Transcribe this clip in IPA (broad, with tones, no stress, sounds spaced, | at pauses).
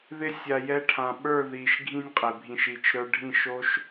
ð ɪ˧ sʲ a˨ j ɛ˧ ʈʰ ã˨ ɓ ə˞˦˨ ð i˨ ʃ ɡʱ ĩ˦ nʲ qʼ ɪ˨ bʱ ĩ˧ ʃ i˧ t͡ʃ ɾ ə˞˦ ɖʱ ĩ˦˨ ʃ o˦ ʃ